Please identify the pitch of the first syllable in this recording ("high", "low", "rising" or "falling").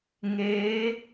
rising